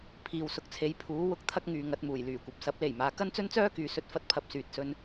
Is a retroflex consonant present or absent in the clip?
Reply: absent